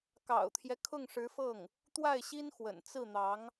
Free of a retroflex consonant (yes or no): no